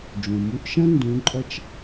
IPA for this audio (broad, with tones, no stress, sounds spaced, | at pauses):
d͡ʒ ũ˩ m u˧ ʔ ʃ ɐ̃˥ n d ũ˧˥ ǃʼ ɐ˥ t͡ʃ